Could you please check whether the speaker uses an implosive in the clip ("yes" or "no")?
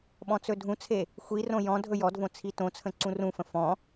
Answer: yes